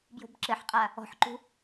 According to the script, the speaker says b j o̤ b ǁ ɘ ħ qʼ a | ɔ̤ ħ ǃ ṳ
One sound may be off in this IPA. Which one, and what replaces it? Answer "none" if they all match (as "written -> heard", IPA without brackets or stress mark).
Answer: none